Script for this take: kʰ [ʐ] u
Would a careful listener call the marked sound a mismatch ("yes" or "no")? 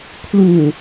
yes